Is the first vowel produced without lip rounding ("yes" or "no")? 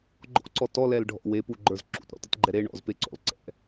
no